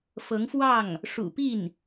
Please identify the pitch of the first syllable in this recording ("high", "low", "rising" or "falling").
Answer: rising